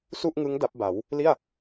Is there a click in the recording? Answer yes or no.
no